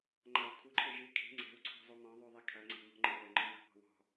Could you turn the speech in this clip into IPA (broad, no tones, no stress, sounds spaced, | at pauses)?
ŋ͡ǃ a w kʰ u ǃʰ e ʒ ɨ kʰ i̤ ŋ͡ǀ ɛ̤ w ǀʰ ɔ̤ zˤ u m ɔ̃ ðˤ u ðˤ e kʰ ɐ ŋ͡ǀ e̤ m ɔ̤ ŋ͡ǃ ɨ w ɛ ŋ͡ǃ ɔ̃ m a̤ p ɔ̤ w ɔ̤